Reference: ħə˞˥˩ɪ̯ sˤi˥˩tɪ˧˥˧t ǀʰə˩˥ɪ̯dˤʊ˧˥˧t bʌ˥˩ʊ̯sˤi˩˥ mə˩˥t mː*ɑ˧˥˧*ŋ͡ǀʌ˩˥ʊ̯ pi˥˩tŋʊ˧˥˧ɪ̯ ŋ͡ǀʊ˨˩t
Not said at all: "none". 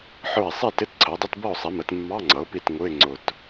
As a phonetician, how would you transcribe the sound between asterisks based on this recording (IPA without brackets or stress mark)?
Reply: ɑ˧˥˧